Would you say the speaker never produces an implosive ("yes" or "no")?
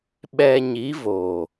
no